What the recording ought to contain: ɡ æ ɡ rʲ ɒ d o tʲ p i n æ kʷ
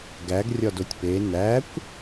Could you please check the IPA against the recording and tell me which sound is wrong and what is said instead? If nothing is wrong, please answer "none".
i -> e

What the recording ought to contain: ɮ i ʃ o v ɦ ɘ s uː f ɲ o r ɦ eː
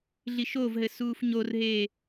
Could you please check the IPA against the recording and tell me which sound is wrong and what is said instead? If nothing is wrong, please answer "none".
none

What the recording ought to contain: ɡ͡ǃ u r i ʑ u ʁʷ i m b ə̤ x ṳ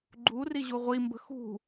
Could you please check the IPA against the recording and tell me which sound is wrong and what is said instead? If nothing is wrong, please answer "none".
none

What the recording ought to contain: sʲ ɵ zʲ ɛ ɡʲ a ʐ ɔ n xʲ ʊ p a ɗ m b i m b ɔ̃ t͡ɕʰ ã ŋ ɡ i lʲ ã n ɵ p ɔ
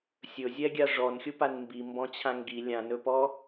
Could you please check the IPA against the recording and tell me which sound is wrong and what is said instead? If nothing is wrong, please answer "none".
ɗ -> n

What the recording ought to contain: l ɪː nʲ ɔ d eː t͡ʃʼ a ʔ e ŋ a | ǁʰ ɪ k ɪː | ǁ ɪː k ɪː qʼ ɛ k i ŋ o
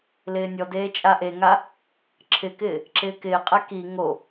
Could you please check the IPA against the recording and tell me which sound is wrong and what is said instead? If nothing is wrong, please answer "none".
none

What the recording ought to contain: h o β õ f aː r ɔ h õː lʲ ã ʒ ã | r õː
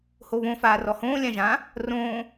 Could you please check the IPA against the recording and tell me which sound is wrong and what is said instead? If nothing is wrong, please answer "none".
none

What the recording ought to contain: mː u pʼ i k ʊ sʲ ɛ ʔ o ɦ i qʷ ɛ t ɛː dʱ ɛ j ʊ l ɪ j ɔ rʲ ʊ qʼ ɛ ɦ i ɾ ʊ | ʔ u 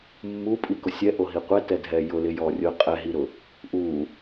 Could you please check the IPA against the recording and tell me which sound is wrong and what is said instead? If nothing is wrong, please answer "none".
ɛː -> ɛ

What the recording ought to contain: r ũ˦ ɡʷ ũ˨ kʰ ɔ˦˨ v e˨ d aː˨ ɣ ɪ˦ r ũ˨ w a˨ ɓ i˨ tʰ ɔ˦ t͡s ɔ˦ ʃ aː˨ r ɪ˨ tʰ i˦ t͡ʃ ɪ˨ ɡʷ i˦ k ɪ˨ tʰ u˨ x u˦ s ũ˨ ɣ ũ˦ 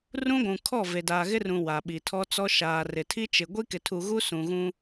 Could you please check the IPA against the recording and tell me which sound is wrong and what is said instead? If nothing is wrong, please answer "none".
x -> ɣ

